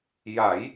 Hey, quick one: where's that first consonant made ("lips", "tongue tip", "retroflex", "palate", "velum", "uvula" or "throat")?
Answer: palate